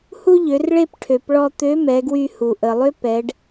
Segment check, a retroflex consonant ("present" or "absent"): present